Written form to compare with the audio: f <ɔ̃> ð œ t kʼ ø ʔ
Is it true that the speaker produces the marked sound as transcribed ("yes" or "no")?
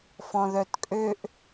yes